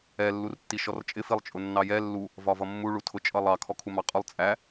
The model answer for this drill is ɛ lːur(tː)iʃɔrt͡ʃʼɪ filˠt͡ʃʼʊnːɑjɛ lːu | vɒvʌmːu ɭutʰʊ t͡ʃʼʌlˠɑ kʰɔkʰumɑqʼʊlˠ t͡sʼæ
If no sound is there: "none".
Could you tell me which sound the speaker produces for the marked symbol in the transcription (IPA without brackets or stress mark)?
tː